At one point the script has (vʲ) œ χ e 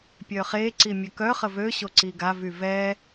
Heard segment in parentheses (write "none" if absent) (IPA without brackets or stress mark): pʲ